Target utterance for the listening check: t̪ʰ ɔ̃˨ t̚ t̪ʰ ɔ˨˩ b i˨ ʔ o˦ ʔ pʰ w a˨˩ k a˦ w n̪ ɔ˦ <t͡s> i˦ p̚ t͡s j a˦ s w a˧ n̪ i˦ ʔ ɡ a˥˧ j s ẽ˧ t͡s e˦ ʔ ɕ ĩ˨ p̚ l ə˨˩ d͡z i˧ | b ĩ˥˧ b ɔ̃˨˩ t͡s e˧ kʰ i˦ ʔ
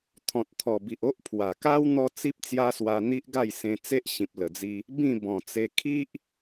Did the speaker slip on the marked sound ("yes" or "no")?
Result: no